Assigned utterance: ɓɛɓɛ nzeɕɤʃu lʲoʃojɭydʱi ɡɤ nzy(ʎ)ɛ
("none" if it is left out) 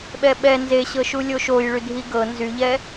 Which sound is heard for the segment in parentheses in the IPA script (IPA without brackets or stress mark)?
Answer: ʎ